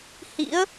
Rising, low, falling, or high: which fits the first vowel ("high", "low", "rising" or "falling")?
rising